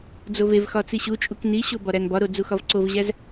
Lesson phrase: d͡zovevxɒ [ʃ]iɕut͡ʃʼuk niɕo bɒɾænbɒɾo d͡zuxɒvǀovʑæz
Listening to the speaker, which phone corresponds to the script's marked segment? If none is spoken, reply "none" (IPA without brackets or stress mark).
t͡s